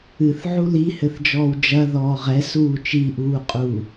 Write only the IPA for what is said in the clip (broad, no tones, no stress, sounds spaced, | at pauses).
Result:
ɨ θ ʕ u l i h ɘ θ d͡ʒ ɔː w d͡ʒ ɐ ð ɔː ʁ ɛ s uː t͡ʃ i ʔ uː qʼ uː